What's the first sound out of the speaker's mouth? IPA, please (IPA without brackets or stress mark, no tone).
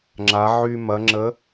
ŋ͡ǁ